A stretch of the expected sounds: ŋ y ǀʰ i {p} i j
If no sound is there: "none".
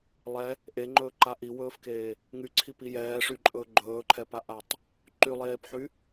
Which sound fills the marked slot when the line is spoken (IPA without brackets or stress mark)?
p